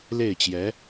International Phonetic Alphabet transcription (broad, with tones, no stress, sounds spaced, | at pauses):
l e˥˩ ɪ̯ t͡ɕ j ɛ˧˥